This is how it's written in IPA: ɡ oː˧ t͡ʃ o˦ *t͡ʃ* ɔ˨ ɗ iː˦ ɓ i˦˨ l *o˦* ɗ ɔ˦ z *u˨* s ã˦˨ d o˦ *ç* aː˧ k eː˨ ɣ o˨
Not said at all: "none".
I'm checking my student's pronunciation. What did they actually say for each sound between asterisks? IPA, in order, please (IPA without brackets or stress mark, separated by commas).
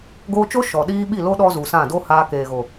ʃ, o˦, u˨, h